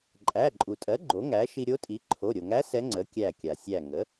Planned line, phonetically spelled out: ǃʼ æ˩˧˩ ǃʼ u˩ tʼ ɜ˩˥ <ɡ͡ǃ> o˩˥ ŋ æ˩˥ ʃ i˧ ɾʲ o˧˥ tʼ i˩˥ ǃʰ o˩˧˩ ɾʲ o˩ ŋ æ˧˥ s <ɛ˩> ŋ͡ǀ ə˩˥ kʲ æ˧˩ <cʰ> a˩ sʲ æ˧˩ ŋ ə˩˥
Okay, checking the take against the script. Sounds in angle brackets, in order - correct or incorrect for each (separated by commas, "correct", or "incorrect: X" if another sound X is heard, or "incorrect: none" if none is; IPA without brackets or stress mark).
correct, incorrect: ɛ˧˥, incorrect: kʲ